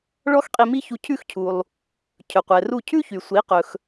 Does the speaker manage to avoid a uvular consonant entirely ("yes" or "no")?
no